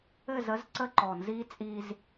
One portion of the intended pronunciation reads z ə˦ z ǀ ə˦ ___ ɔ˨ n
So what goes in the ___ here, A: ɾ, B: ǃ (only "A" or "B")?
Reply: B